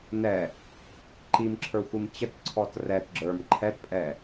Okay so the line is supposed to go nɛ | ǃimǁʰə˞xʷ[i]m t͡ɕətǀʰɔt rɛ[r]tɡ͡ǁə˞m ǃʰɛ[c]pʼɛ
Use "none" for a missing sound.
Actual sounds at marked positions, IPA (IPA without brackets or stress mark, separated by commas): i, none, t